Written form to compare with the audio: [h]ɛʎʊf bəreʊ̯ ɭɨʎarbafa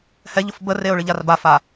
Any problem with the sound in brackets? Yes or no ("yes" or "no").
no